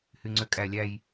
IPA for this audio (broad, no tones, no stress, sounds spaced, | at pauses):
h y ŋ͡ǀ ø kʼ æ lʲ æ j